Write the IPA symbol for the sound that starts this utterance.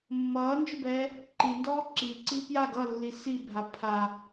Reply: mː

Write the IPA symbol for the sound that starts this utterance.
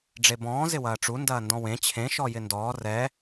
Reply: ɖ͡ʐ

